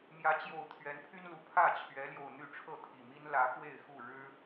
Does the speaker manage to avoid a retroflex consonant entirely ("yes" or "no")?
no